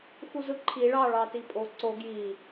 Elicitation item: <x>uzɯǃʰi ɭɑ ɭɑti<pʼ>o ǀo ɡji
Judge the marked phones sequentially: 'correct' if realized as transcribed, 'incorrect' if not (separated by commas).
correct, correct